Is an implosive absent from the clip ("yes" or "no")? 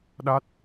no